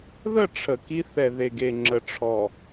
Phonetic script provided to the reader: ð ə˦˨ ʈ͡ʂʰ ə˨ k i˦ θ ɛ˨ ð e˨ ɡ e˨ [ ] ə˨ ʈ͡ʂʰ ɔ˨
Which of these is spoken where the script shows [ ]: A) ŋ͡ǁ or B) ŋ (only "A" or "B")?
A